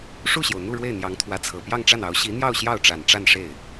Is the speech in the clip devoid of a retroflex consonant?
no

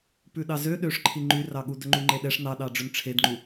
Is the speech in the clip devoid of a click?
no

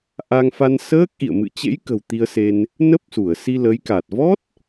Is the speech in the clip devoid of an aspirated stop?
yes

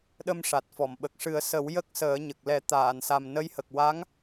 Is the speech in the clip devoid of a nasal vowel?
yes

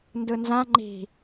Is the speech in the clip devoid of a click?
no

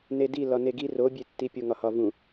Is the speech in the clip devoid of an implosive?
yes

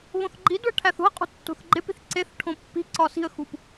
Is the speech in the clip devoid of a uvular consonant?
no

